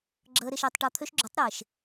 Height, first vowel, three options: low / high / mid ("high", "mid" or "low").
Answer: mid